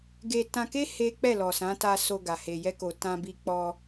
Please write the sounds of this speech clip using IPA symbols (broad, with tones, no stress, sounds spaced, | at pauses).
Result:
ɡ e˧ t ã˧ k e˦ h e˦ k͡p ɛ˦˨ l ɔ˨ s ã˨˦ t a˧ s o˧ ɡ a˨ h e˨ j ɛ˧ k o˨ t ã˧ b i˧ k͡p ɔ˧